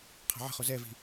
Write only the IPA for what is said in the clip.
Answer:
qʰ a̤ ʕ ə̤ χ o z ɛ v i̤

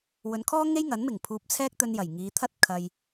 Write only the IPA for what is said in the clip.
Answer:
w ɵ˨˧ n kʰ ɔː˥ ŋ e˥ j ŋ ɐ˨˥ n m ɪ˨˩ ŋ pʰ uː˧ p̚ t͡sʰ ɛː˥ k̚ t̪ ɵ˧ n j ɐ˨˩ j ŋ iː˨˧ t̪ʰ ɐ˥ t̚ kʰ ɐ˧ j

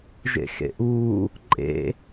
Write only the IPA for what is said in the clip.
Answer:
ʒ ḛ x ḛ ʔ uː | ǃʼ ḛ

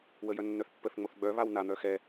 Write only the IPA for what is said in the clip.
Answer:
w ə j œ nː œ θ pː ə θ ŋ͡m o θ ɡ͡b œ β a w n a n̪ œ x ɛ

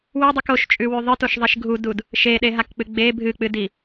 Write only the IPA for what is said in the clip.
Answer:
w ʉ dˤ ɨ k o ʃ t͡ʃʼ ʉ w ʉ ðˤ ɨ t o ʃ ðˤ i ʃ ɡʱ u d u d | ʃ e ɗ e ɦ a k k͡p ɨ ɡ͡b e bʱ ɨ k͡p ɨ d i

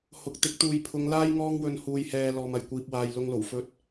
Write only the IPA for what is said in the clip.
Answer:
h ʊ˨ k̚ t̪ ɪ˨˥ k̚ t̪ uː˨ j pʰ ʊ˨˧ ŋ l aː˥ j ŋ ɔː˧ ŋ w ɵ˨ n h uː˨ j h ɛː˨ l ɔː˨ m ɐ˨˩ j kʷ iː˨ p̚ w aː˨ j l ʊ˧ ŋ l o˨˩ w f ɵ˧ t̚

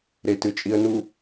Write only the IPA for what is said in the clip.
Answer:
ɾ e t ɨ t͡ʃʼ i ə̯ n u

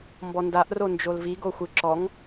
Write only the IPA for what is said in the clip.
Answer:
m b ɔ n d a ʔ r o n d͡ʒ o l v i ɡ o xʷ ɯ ǁ ɔ ŋ

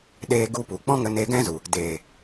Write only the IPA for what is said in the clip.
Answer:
ɗ eː˧ ɡ u˧ p u˨ k͡p ɔ̃˦ ŋ ə˧ n eː˧ ɡ ɛ̃˦ z u˨ | d eː˨

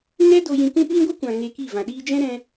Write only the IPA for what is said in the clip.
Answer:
ŋ ɛ˦ d o˧ j ĩ˧ k ũ˦ ɓ ĩ˦ ɡʷ ɨ˦ kʷ ã˨ ŋ e˧ k i˦˨ v ã˨ ɗ iː˧ d͡ʒ ɛ̃˦ ɾ ɛ̃˧

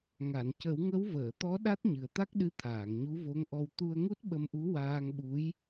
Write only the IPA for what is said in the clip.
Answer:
ŋ a˨˩˨ n c ə˨˩˦ w ŋ ə˧˥ w v əː˨˩˨ t̪ ɔ˧˥ ɗ a˦˥ t̚ ɲ ɨ˨˩ ə̯ t̪ a˦˥ k̚ ɗ ɨ˧˥ t̪ʰ aː˨˩˨ ŋ ɲ u˧˥ v o˧˥ ŋ ʔ ɔ˧ w t̪ u˧ ə̯ ŋ u˦˥ t̚ ɓ ə˧ m ʔ u˧˥ w aː˧ ŋ ɓ u˧˥ j

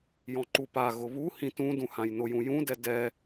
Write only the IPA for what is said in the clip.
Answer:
j ɔ̃ ǃ u p a ɣ ʊ β u h ĩ t ũ d ũ h ã j n ʊ j ũ j ũ d ɛ d ɛ

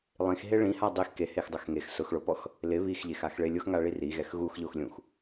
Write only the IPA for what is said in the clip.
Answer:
lˠ ĩ x ɦ e ɭ ĩ h a dˤ i x k e h e x dˤ o x ŋ e x s ʊ x ɭ o p ɔ x | l ɪ β i x ʎ e x a x ɭ e lʲ ʊ x ŋ a ɭ i r i ɣ ɛ x ɣ u x ʎ o x lʲ ũ x

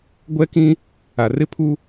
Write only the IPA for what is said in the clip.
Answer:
ɡʷ ɛ˦ k ĩ˦ | a˨ r ɪ˦ pʰ u˦

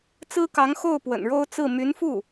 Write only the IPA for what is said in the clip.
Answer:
t͡s ɹ̩˥ k ɑ˧˥ ŋ x o˥˩ ʊ̯ p w ə̰˨˩ n ɻ o˥ ʊ̯ t͡s ɹ̩˥˩ m y˧˥ n f u˥˩

